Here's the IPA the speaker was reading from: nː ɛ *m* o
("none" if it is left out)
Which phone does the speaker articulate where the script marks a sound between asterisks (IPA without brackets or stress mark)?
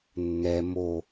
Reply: m